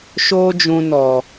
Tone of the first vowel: high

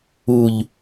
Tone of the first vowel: low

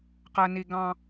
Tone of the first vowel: low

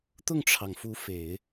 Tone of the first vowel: falling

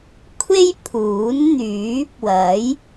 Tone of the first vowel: high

